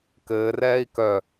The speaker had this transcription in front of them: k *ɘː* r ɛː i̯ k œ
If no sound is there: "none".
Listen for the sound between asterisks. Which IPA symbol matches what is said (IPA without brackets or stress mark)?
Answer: ɘː